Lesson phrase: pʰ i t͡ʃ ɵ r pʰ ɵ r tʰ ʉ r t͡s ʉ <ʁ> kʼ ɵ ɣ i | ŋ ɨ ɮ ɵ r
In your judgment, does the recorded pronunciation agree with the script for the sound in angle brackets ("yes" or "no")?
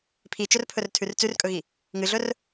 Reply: no